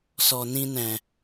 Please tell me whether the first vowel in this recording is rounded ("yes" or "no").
yes